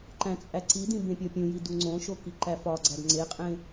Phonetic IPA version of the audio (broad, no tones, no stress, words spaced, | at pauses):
ǃæ̃t͡sʼæǀidĩ bẽpʲɒpʲũji duŋ͡ǀõʃo kiǃæfɒɡ͡ǀæd ŋ͡ǀeqʼẽ